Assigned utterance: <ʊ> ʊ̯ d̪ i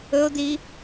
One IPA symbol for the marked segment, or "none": ɵ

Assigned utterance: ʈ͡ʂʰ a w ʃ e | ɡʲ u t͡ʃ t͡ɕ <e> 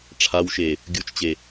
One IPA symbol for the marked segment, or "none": e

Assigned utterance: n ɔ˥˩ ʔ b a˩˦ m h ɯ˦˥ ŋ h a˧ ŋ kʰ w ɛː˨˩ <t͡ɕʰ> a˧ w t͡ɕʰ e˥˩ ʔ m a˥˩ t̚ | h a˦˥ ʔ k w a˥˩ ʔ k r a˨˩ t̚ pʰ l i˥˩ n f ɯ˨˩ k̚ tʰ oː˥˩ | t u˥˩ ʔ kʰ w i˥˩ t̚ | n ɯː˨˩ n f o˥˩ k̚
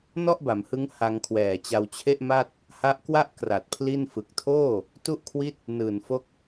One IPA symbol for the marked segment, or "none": t͡ɕ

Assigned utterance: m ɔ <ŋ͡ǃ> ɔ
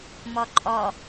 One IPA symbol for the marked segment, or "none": ǃʼ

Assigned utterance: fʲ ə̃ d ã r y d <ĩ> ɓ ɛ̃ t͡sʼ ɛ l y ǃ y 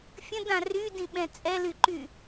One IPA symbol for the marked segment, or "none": ĩ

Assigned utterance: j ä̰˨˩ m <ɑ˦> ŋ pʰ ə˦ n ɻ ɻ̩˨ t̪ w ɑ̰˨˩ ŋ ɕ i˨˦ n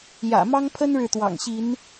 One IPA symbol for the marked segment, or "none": ɑ˦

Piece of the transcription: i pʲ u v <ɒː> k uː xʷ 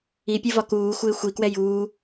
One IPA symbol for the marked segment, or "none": ɒ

